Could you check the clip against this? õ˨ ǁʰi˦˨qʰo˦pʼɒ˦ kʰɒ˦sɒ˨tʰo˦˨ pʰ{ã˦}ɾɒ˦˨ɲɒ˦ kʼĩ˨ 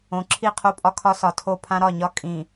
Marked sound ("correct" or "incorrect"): correct